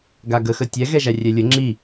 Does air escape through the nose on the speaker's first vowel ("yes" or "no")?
no